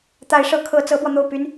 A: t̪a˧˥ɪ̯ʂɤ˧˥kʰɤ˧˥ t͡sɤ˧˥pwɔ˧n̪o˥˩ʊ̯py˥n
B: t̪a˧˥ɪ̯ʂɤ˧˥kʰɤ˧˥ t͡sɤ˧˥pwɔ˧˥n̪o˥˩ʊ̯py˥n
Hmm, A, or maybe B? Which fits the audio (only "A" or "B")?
A